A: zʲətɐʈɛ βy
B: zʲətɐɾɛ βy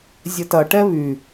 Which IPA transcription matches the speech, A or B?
A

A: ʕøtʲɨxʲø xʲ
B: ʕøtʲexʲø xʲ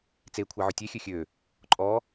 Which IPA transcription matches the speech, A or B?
B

